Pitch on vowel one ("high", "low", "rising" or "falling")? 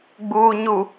low